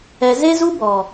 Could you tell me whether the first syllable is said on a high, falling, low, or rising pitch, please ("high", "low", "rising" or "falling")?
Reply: low